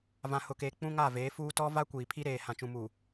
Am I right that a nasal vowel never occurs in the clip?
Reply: no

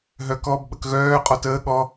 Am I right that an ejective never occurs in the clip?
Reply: no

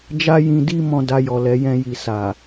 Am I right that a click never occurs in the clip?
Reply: yes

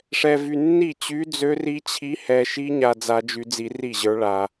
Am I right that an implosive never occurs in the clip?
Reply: yes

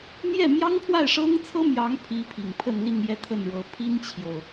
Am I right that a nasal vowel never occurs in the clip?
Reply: yes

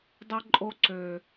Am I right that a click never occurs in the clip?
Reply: no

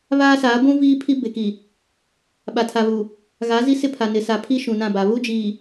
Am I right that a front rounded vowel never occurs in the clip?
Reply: yes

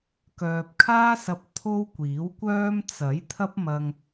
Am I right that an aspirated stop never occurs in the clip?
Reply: no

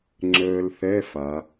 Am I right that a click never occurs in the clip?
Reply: no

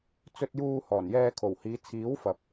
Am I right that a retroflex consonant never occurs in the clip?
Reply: yes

